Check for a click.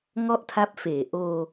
absent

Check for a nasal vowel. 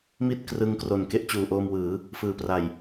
absent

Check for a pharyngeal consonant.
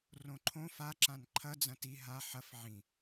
present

